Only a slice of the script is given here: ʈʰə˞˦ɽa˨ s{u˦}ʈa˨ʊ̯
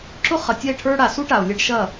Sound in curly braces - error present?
no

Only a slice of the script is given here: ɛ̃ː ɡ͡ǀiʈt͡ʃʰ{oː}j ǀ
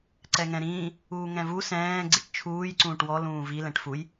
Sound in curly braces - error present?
yes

